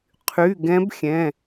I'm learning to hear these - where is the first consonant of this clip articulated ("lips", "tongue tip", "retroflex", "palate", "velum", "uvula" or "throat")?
uvula